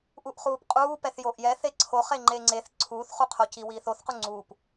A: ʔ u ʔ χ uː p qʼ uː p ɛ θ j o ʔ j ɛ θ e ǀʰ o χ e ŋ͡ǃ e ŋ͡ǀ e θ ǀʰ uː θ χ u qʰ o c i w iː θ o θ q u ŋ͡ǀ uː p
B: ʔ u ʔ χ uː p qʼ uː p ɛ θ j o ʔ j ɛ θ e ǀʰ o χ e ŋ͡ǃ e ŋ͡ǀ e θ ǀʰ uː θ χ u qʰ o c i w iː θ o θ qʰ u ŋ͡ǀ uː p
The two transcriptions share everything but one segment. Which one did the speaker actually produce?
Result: A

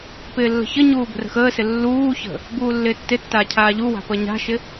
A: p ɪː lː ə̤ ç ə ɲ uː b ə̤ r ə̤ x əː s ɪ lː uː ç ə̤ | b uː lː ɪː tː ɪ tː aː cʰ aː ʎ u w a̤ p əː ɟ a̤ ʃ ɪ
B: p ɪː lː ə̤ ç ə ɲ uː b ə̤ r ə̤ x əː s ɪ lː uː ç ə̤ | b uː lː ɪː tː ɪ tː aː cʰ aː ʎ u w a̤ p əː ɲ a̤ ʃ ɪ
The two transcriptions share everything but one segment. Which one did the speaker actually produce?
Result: B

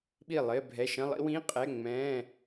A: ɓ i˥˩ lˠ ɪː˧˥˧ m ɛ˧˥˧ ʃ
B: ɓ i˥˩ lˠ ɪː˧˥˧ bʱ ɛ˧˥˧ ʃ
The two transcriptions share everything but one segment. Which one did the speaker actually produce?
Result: B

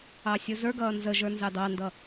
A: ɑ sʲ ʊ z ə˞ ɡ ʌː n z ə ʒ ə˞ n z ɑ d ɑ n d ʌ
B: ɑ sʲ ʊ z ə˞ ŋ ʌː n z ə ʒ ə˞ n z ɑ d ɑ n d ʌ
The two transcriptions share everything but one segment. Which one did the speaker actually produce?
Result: A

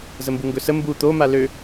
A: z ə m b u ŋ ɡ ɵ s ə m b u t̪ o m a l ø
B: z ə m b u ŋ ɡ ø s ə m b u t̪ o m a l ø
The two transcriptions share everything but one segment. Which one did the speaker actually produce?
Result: A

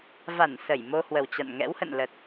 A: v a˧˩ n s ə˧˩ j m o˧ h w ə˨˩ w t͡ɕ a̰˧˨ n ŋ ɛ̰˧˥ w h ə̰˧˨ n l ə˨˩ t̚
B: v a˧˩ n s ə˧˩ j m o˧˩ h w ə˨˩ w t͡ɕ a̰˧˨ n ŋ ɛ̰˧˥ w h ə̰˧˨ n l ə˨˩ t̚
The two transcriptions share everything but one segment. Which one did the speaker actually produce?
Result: A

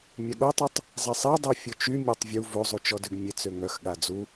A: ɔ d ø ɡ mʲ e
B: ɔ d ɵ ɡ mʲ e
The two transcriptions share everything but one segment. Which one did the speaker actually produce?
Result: A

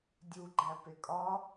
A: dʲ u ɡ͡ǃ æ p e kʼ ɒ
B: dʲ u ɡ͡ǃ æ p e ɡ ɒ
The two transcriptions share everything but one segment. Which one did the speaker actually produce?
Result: A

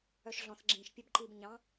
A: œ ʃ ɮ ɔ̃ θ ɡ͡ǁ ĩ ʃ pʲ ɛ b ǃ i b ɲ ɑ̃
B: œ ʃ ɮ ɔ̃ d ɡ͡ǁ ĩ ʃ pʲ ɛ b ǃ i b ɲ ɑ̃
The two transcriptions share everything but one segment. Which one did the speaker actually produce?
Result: A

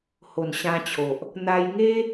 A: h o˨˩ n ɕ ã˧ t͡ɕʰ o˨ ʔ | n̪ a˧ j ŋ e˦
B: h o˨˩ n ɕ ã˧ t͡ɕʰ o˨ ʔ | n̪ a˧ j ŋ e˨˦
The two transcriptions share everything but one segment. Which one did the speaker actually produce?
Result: A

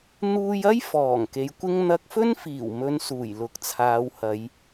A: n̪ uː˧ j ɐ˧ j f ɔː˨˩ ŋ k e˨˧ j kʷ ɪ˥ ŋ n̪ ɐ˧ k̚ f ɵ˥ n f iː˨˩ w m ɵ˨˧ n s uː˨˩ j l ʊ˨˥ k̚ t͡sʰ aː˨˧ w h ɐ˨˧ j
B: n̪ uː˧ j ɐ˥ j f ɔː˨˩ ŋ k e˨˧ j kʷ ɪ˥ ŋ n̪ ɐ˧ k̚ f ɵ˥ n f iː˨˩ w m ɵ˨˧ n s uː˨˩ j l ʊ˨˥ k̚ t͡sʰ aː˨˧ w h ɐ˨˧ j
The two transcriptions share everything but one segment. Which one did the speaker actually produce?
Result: B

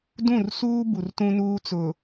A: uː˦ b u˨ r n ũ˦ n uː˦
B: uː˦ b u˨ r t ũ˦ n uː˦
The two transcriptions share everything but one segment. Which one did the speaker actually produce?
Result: B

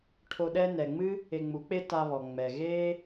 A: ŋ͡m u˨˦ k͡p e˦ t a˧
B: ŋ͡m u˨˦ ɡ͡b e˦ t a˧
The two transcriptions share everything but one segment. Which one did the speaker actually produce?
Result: A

